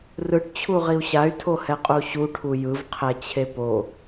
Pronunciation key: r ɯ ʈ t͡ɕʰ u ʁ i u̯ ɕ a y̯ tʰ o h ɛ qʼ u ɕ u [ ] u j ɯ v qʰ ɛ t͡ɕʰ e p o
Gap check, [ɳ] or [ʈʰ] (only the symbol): ʈʰ